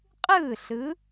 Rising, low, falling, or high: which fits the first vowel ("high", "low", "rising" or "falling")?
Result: falling